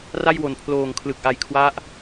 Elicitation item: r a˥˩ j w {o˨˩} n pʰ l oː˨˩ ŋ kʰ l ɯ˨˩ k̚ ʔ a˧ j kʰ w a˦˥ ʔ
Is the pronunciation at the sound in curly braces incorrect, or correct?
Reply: correct